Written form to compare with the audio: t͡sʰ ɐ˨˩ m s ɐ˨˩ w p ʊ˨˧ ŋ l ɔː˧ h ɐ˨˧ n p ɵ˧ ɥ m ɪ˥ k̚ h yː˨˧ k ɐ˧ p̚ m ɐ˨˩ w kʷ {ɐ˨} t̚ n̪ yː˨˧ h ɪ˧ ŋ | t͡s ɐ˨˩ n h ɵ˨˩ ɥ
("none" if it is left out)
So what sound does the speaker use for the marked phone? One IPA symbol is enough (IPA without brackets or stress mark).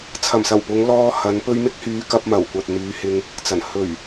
ɐ˨